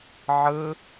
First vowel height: high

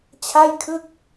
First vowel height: low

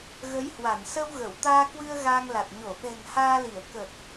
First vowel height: mid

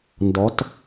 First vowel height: mid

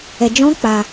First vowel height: mid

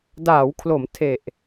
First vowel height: low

